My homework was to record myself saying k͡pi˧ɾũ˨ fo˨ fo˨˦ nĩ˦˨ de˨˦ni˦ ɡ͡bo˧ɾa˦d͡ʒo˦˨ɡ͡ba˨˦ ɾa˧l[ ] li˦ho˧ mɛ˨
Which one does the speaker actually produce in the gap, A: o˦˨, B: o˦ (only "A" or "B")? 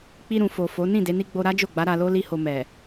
B